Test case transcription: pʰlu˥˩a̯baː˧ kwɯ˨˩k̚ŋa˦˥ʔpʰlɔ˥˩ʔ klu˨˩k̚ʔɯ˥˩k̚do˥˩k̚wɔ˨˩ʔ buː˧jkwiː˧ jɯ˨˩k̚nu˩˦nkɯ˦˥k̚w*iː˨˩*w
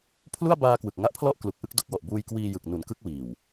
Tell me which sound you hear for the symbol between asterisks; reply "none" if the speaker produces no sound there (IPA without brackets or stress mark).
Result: iː˨˩